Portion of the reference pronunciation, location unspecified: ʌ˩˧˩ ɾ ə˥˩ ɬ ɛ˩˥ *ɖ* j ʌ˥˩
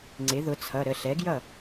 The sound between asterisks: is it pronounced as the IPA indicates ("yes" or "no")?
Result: no